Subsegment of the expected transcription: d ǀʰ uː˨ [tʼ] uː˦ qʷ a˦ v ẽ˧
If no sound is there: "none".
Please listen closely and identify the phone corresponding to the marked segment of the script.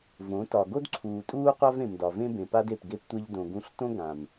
tʼ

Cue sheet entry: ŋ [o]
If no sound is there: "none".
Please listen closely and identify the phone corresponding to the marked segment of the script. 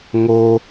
o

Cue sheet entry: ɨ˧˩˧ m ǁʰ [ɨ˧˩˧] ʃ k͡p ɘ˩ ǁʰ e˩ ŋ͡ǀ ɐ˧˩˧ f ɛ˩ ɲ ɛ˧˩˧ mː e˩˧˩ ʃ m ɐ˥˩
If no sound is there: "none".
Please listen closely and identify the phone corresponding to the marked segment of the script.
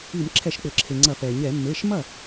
ɛ˧˩˧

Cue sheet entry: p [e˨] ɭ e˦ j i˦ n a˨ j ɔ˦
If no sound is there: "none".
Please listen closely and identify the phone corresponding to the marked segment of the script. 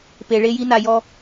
e˨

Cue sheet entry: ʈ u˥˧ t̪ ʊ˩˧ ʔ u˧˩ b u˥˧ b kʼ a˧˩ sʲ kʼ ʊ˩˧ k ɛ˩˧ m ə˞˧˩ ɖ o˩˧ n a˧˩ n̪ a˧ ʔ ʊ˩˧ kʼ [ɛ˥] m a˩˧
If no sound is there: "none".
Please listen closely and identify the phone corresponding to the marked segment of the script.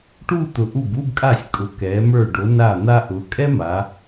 ɛ˥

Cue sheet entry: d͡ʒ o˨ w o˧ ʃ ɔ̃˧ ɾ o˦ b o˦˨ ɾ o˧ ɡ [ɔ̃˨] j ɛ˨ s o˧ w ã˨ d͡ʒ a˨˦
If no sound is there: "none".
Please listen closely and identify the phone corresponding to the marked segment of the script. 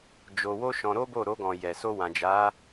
ɔ̃˨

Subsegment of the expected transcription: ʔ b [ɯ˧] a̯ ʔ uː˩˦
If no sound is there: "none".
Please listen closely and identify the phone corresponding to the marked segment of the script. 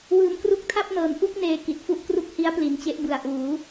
ɯ˨˩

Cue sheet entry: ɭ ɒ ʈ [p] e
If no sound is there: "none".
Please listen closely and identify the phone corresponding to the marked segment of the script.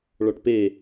p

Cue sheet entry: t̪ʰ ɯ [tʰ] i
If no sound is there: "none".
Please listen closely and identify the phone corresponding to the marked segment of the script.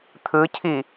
cʰ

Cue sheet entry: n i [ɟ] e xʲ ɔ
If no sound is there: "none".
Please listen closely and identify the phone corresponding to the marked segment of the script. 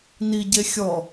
ɟ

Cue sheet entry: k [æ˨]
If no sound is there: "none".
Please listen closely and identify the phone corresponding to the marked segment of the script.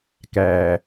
æ˨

